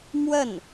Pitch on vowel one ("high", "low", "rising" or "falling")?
falling